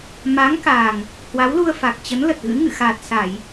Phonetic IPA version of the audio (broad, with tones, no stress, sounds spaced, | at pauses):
m a˨˦ ŋ k aː˨˩ ŋ | h w a˨˦ w l u˧ ə̯ f a˨˩ k̚ t͡ɕ ə˨˦ n l ə˨˩ t̚ ɣ ɨ̰˧˥ ŋ ɨ̰˧˨ x aː˨˩ t̚ s a˧˩˨ j